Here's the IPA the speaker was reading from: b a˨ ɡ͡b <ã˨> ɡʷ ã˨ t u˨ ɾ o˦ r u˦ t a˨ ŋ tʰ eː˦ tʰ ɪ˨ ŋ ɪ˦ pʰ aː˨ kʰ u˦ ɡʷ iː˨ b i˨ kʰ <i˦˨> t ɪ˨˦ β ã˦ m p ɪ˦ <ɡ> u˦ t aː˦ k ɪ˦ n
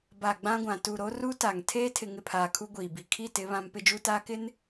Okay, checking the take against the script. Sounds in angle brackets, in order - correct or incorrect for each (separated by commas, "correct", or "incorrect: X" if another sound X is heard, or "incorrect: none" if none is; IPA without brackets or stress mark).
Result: incorrect: ã˦, correct, incorrect: d͡ʒ